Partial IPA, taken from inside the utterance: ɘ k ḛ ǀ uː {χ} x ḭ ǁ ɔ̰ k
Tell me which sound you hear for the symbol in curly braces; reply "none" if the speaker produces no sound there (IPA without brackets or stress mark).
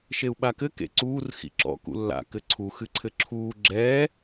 r